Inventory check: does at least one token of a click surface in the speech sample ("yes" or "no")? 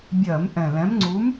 yes